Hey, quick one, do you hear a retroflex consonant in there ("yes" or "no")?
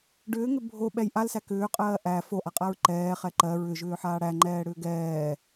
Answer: yes